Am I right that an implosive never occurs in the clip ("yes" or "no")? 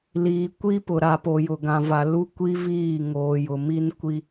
yes